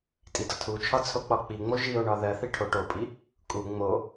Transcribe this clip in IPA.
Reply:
tʼ i d ɒ tʰ u t͡ʃʰ ɒ t͡sʰ o k͡p ɒ k͡p i ŋ͡m o ʒ i o̯ ɳ ɒ ð ɜ θ i ʈʰ o ʈ o pʼ i | kʼ u ŋ͡m o

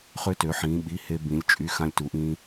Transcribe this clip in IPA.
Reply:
χ ø˧ t ø˩˧ ħ ĩː˩˧ ɓ i˩˧˩ h e˧ b ĩ˩˧ lʲ t͡ʃʼ y˩˧˩ x ã˧ lʲ t u˩˧ ʔ ĩː˧

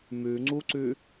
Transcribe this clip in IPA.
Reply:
m ʉ ŋ͡ǀ u ǀ ʉ

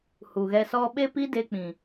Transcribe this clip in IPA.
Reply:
h u˨ ɣ ɛ˧ s ɔ˦ ɓ e˦ p i˦ d e˧ k͡p ĩ˨

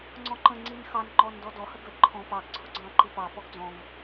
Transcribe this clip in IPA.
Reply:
ŋ͡ǀ ɔ̃ ǃ ə̃ ŋ͡ǀ i n x ɑ n ŋ͡ǃ ɔ n d ɔ d ɔ h ə ɡ ə ǃʰ ɔ̃ p ɑ ɡ ǀʰ ʊ ɡ͡ǀ ɑ̃ ǃ i p ɑ p ɔ ɡ d͡z ɔ̃ ŋ

